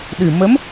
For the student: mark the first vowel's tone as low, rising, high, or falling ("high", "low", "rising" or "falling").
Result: low